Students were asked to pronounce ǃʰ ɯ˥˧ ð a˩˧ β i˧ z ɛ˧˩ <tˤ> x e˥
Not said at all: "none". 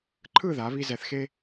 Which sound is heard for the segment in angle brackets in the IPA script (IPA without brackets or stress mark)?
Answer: θ